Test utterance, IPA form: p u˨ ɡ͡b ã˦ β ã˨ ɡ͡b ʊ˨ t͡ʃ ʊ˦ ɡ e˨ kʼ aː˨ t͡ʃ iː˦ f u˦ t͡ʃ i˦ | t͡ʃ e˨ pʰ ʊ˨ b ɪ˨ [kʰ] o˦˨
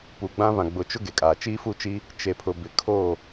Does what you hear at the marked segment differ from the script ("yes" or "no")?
no